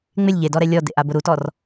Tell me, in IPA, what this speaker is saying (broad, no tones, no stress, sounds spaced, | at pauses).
ŋ͡m ɪ lʲ ʎ e d ɔ ɾ ɛ lʲ ɔ d ḛ ʔ a b ʊ ɾ u t ɔ r